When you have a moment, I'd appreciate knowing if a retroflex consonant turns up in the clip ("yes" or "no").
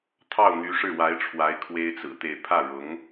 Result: yes